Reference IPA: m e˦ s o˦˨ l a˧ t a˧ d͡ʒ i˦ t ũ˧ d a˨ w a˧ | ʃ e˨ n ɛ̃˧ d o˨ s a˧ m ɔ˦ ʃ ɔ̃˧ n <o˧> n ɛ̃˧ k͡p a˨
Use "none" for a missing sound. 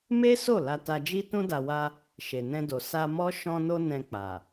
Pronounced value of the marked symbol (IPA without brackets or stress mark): o˧